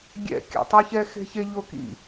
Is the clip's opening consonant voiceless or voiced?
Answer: voiced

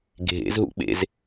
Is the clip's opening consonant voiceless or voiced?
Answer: voiced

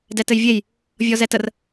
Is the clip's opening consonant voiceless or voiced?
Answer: voiced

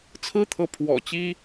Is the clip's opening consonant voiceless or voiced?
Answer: voiceless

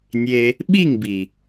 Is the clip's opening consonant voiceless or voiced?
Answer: voiced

